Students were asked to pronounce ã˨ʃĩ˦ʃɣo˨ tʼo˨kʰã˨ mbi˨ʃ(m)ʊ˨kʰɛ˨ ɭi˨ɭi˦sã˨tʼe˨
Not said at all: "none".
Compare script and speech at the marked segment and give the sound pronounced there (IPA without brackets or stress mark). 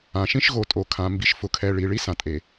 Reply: f